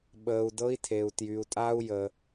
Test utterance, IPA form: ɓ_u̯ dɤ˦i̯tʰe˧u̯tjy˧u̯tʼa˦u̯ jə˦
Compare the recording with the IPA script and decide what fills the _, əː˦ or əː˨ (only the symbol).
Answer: əː˦